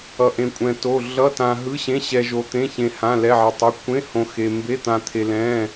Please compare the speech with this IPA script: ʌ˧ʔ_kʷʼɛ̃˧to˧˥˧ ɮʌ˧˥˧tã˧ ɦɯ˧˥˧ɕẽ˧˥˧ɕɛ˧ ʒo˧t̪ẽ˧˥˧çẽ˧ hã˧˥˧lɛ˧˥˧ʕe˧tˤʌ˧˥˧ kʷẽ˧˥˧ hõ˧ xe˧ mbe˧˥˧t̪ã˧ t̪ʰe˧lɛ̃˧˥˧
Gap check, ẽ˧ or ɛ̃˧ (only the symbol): ẽ˧